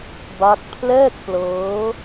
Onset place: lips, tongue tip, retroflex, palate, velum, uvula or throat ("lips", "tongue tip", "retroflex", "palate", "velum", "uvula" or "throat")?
lips